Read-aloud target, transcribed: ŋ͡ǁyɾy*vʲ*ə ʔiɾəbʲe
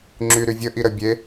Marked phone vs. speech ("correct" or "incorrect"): correct